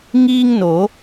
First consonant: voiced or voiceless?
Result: voiced